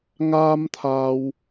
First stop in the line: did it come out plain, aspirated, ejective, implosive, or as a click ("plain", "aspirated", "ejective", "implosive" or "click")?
aspirated